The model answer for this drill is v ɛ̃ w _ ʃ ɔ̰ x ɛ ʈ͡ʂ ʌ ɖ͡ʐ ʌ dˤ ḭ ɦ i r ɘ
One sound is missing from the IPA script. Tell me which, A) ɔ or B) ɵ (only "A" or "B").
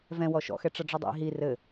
A